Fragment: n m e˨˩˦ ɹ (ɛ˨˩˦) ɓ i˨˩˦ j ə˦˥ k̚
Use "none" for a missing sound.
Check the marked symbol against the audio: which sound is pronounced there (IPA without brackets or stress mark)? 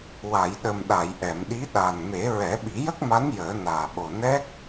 ɛ˨˩˦